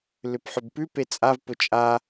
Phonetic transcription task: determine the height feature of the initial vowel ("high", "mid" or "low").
high